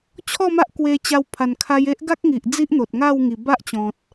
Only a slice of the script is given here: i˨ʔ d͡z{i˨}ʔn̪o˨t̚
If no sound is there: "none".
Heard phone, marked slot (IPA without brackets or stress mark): i˦